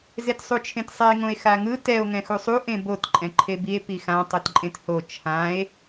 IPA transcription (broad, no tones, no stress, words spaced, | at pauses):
zetsˤut͡ʃʰẽtsˤɛe̯ ŋõe̯xaŋɯ tɛo̯ ŋɛ̃xusˤu ʔẽbot ǃʼɛ̃ǃʰebie̯ pixã tˤɯtǃʼẽtho t͡ʃʰãe̯